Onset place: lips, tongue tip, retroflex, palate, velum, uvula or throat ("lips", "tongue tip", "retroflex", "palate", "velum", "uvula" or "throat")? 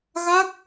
velum